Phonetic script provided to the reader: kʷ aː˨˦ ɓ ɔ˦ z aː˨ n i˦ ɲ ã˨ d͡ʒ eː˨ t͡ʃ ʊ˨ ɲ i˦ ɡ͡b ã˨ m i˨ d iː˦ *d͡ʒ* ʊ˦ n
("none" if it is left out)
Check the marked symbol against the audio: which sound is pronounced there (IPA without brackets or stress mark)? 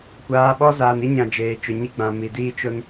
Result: t͡ʃ